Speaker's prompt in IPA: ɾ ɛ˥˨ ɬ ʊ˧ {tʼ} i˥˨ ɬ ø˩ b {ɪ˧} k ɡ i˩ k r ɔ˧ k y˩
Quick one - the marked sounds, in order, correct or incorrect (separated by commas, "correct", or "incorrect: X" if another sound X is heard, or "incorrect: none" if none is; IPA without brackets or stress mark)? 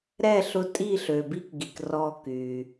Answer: correct, incorrect: i˧